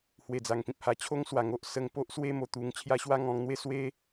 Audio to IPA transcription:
h w e˨˩ d͡z a˨˩ ŋ p ĩ˨ p̚ h a˧ t͡ɕʰ o˦ ŋ s w a˨˩ ŋ o˨ ʔ s ə˧ ŋ p o˦ ʔ s w e˦ m o˧ t̪ u˧ ŋ t͡ɕʰ j a˦ ɕ w a˦ ŋ ɔ̃˧ ŋ n̪ w e˦ s w e˦

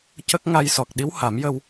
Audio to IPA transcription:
c ə˦˥ k̚ ŋ a˧ j s ɔ˨˩ k̚ ɗ i˧˥ w h a˨˩˦ m j ə˧ w

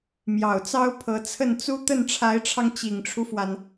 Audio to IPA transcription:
m j ɑ˨˩ ʊ̯ t͡s ɑ˥ ʊ̯ pʰ ɤ˧˥ t͡sʰ ə˥˩ n t͡s u˥ t̪ ə˥˩ n ʈ͡ʂʰ a˧˥ ɪ̯ ʈ͡ʂʰ ɑ˧ ŋ t͡ɕ i˨˩ ŋ ʈ͡ʂʰ u˦ f w a˩ n

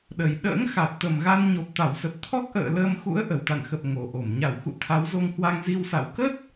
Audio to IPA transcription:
ɗ ə˨˩ j ɗ ə̰ː˧˥ ŋ x a˨˩ t̚ t̪ ə˨˩ m ɣ a˧ n ɲ o˨˩ p̚ t̪ a˧˩ w s ə˨˩ p̚ t̪ʰ ɔ˦˥ k̚ ʔ ə̰ː˧˨ l əː˧ m x ṵ˧˥ ə̯ ʔ ə˨˩ w t̪ a̰˧˨ n x ə˨˩ p̚ ŋ o˨˩ ʔ o˧˩ m ɲ a˧˩ w x ṵ˧˨ t̪ʰ a˨˦ w z o˧ ŋ h w a˧ ŋ z i˧ w s a̰˧˨ w k ə˦˥ t̚

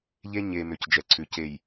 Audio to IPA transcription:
ʎ e˦ ɲ e˨ m ʏ˨ c d͡ʒ ɛ˨ ǀʰ ʉ˨ c e˨ j

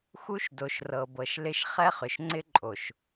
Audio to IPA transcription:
x u˦ ʃ d o˨ ʃ r ɤ˨ b ɤ˨ ʃ l ɪ˦ ʃ χ ɛ˦ χ ʏ˨ ʃ ŋ͡ǀ ɪ˦ ǃʼ o˨ ʃ

